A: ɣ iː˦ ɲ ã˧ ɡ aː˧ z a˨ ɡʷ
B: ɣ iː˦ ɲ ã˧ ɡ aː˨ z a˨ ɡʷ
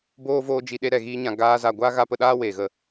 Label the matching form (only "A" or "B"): A